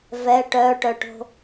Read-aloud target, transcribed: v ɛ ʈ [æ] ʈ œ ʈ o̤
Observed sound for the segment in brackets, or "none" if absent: œ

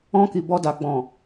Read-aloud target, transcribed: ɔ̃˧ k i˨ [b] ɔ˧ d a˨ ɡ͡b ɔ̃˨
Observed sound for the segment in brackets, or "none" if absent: b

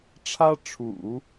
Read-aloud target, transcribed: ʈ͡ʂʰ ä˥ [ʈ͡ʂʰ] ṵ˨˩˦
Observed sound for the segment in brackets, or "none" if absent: ʈ͡ʂʰ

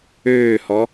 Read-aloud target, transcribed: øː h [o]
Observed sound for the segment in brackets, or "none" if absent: ɔ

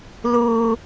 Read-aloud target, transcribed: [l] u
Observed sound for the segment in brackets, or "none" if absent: l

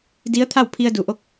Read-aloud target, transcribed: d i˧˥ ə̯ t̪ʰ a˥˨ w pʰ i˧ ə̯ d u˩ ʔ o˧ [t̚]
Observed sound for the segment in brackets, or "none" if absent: k̚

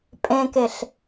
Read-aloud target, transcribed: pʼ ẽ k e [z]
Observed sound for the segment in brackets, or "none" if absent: ɬ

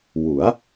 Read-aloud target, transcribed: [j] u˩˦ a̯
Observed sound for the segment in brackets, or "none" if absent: w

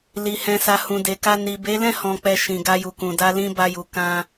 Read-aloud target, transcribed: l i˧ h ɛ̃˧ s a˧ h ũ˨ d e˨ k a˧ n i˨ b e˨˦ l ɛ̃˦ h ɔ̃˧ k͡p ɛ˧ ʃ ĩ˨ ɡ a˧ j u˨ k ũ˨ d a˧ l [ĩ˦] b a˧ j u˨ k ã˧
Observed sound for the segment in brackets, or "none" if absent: ĩ˧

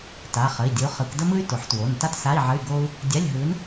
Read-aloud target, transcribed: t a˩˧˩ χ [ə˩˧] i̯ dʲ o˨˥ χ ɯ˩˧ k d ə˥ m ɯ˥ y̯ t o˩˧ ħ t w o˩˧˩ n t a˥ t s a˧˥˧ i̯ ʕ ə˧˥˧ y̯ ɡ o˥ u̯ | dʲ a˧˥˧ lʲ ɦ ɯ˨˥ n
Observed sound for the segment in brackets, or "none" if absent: ə˩˧˩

